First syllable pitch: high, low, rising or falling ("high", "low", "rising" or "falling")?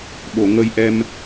low